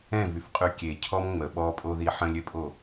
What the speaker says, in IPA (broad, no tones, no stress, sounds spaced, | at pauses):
ɛ̃ v y f qʼ y kʲ e cʰ ɔ m ŋ͡m ə ɓ ɔ pʼ o ð i ħ ə̃ lʲ ø pʼ o